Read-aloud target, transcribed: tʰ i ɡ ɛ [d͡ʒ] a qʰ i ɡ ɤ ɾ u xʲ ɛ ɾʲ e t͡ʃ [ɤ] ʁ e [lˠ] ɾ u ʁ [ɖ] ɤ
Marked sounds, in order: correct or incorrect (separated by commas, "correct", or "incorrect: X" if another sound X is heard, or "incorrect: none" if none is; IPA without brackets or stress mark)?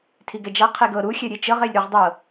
correct, correct, incorrect: lʲ, incorrect: dˤ